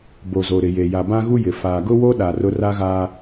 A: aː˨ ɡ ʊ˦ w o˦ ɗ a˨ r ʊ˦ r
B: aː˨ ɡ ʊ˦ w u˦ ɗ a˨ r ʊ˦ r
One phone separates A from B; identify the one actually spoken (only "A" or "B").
A